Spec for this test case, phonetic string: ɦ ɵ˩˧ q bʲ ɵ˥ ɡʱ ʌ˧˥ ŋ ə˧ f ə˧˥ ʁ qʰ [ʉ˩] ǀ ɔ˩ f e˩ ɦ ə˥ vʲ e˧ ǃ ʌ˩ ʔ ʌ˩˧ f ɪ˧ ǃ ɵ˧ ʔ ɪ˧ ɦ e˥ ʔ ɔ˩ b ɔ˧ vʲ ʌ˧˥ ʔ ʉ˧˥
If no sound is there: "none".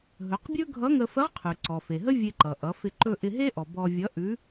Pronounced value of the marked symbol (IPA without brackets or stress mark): ʉ˩